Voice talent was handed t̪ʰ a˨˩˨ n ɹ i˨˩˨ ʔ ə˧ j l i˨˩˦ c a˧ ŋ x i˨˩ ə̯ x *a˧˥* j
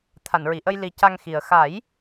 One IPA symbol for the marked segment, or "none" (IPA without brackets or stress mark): a˨˩˦